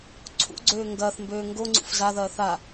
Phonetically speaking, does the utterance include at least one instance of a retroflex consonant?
no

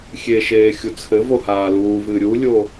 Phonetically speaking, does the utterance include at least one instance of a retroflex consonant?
no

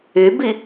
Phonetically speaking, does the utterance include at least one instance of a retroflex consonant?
no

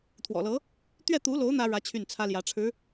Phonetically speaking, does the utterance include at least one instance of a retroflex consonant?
yes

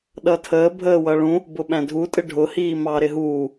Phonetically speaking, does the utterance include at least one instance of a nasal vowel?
yes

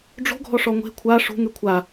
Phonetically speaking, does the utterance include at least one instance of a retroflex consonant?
yes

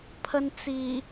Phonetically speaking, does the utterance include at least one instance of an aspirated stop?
yes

